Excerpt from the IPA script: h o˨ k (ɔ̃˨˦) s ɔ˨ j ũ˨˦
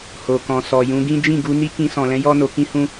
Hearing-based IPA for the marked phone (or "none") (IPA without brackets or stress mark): ɔ̃˨